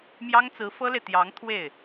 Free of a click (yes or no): yes